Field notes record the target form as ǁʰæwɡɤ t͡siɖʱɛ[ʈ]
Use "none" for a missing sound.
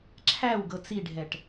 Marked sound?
ʈ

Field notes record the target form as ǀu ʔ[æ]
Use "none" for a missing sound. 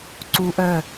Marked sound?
œ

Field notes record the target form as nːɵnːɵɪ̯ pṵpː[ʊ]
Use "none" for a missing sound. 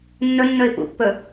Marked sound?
ɵ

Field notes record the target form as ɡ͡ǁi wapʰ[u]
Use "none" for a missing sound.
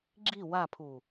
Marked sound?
u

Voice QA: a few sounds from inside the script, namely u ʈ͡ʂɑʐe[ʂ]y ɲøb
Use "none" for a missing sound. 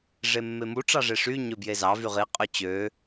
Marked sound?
ʂ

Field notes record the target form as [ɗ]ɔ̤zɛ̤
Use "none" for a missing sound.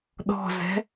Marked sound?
ɗ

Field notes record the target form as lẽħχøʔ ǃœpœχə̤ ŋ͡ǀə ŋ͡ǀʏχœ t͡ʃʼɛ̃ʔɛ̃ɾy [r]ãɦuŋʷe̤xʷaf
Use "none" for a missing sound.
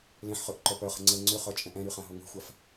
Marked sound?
χ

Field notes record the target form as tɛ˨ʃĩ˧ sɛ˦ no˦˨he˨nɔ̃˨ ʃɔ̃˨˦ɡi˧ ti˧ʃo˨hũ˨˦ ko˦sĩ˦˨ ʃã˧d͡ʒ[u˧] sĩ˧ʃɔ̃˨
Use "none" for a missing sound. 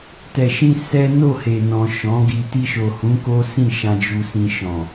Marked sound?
u˧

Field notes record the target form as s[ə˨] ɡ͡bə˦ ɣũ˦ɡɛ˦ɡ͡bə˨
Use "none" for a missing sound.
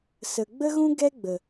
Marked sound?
ə˨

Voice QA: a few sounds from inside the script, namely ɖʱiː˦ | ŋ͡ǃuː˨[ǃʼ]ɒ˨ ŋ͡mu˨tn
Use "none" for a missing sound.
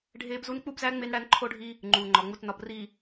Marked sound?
ŋ͡ǃ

